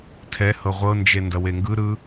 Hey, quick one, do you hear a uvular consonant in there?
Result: yes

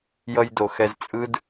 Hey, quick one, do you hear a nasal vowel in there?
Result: no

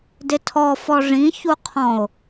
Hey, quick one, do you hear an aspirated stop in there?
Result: yes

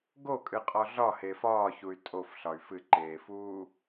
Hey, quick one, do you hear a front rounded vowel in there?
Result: yes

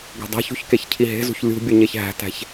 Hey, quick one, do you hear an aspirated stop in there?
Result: yes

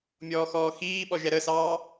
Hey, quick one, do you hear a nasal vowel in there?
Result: no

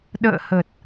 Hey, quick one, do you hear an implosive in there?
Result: yes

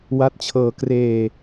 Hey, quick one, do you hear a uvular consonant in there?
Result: no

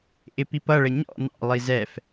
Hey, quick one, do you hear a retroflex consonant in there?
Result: yes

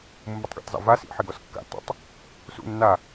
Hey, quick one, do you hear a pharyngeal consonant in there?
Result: yes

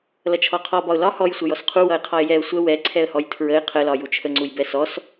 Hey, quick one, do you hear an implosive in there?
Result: no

